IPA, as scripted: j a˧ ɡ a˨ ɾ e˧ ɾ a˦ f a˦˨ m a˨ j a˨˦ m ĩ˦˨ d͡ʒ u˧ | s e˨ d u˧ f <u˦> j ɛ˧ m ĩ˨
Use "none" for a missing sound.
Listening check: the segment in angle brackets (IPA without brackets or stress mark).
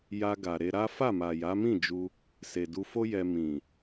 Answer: o˦